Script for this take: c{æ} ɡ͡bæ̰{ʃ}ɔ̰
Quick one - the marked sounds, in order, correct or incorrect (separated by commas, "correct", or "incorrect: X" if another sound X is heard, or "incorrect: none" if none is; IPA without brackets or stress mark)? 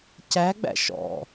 correct, correct